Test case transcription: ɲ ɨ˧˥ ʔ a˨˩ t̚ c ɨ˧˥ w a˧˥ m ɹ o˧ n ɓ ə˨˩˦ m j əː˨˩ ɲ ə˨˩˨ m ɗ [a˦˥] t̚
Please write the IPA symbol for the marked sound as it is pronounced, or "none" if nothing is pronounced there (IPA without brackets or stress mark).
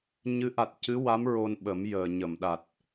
a˨˩